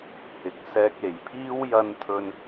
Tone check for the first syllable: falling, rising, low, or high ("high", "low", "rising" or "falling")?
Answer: rising